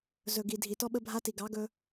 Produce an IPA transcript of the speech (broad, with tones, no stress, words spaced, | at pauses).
zɵ˨ɡi˨ dʱi˨tɔ˦ɓə˦bʱa˦ ti˨ɡɑ˨˦ɡɵ˦